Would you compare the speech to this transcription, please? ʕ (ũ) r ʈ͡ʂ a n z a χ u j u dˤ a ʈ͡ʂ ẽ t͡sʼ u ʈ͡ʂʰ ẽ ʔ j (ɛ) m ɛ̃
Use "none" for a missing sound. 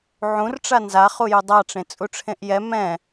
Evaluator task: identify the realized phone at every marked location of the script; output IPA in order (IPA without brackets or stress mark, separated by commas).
ũ, ɛ